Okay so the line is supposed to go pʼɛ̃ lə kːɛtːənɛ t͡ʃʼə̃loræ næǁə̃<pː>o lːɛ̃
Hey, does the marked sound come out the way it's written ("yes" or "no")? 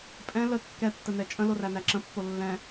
yes